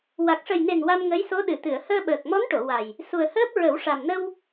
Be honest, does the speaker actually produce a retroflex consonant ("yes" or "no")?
yes